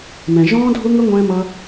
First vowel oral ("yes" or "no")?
no